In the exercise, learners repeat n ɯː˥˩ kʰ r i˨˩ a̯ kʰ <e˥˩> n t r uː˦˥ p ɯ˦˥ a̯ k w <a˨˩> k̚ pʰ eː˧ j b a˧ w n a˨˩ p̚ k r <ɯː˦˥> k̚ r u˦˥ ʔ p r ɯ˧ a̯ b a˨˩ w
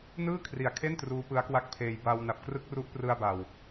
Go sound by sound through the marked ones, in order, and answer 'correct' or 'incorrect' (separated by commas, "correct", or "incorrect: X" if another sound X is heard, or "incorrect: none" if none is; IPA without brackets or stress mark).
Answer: correct, incorrect: a˥˩, incorrect: ɯ˦˥